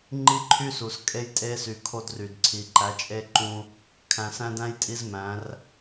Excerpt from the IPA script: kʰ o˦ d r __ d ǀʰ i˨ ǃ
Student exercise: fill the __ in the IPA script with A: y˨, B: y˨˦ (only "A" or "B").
A